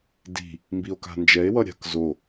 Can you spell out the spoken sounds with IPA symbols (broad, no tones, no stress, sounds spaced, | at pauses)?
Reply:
d i̤ | m b i o̯ k a̤ n d͡ʒ ɛ e̯ w ʌ ɾʲ a̤ k z o